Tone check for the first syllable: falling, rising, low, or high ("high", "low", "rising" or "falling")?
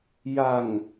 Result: low